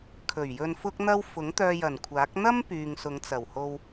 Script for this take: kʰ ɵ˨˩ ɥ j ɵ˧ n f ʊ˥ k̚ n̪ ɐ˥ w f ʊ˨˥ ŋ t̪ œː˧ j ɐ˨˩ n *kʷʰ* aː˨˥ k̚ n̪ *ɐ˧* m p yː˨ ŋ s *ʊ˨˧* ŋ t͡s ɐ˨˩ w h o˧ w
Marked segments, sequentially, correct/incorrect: correct, incorrect, correct

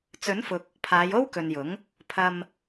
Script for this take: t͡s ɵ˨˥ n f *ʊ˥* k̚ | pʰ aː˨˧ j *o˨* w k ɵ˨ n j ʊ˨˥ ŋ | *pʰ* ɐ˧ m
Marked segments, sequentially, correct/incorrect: incorrect, incorrect, correct

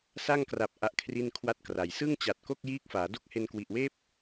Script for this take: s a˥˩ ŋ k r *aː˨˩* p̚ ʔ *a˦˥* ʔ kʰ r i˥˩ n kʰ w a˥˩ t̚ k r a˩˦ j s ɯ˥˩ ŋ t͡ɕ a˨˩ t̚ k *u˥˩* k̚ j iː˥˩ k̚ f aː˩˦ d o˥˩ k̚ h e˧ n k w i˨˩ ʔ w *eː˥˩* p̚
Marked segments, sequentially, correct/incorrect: incorrect, correct, incorrect, correct

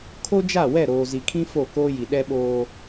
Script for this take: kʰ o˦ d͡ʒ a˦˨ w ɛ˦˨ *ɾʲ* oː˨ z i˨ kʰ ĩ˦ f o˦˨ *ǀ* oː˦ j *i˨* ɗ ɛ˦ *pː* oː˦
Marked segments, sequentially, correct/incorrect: incorrect, incorrect, correct, incorrect

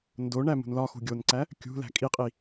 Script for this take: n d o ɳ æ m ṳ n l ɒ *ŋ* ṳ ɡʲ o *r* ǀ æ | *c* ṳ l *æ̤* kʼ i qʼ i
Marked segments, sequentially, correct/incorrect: incorrect, incorrect, incorrect, correct

